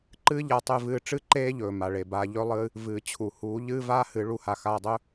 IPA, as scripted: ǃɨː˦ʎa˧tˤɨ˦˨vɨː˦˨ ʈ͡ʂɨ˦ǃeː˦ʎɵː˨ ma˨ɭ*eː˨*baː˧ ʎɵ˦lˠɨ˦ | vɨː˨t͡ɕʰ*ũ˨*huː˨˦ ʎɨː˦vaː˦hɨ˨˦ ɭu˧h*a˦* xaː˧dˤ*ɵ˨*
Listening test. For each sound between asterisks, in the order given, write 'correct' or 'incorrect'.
incorrect, incorrect, incorrect, incorrect

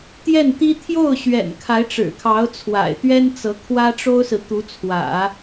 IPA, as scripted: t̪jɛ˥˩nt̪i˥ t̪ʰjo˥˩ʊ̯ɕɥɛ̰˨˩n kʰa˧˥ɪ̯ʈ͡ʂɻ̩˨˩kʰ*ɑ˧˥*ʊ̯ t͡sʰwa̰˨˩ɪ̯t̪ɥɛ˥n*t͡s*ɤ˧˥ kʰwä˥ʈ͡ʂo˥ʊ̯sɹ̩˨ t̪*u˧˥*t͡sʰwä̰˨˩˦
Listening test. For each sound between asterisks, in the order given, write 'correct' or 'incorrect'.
correct, correct, correct

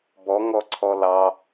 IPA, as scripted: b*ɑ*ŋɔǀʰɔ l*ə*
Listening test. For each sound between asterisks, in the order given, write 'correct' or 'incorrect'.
incorrect, incorrect

